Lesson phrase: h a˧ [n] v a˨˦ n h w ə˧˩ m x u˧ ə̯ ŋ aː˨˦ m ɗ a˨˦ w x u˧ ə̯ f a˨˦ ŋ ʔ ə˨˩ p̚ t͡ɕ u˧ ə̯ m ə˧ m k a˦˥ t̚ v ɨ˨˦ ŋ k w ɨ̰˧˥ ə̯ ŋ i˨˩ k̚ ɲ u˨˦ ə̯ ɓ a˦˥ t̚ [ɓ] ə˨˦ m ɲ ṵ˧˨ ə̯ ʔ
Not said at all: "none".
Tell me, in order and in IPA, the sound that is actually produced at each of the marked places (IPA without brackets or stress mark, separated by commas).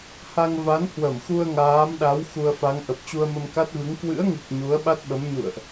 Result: ŋ, ɓ